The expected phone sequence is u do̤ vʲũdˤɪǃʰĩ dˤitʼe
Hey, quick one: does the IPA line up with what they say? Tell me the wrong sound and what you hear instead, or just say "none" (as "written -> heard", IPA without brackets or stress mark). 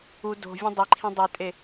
ɪ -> i